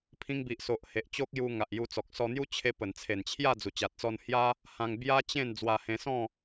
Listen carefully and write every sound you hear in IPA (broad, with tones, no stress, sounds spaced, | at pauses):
pʰ ĩ˧ ŋ b i˨ ʔ s o˨ ʔ h e˨ ʔ t͡ɕ o˦ k̚ j u˧ ŋ a˨ ʔ j u˧ t͡s ɔ˨ k̚ s ɔ˧ n̪ j u˦ t͡ɕʰ e˧ p ə˨˩ n t͡sʰ e˨˩ n t͡ɕʰ j a˥˧ d͡z u˨˩ t͡ɕ a˨ t̚ t͡s ɔ˧ n h j a˦ | h ã˧ ŋ b j a˦ t͡ɕ ẽ˥˧ n d͡z w a˧ h ẽ˧ s ɔ̃˥˧